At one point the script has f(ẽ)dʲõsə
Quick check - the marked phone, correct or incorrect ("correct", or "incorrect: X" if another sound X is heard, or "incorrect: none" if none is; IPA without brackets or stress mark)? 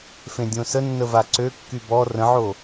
correct